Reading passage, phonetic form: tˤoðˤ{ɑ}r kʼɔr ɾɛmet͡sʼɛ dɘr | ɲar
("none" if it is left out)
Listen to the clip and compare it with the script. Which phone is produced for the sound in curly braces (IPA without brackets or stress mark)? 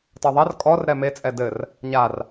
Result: ɐ